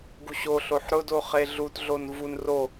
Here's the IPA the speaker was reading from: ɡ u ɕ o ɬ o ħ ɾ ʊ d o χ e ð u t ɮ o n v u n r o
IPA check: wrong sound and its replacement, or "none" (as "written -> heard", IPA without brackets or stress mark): ð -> ɮ